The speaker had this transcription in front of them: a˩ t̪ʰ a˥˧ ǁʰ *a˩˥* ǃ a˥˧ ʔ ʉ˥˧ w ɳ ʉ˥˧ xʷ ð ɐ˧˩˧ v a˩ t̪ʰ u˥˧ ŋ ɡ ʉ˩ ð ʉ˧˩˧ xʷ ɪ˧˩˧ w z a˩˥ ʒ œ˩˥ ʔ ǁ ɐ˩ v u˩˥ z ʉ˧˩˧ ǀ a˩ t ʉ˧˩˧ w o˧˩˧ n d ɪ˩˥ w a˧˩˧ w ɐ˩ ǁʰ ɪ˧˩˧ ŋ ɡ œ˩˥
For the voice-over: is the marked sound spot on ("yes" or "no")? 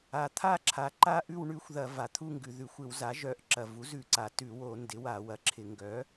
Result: yes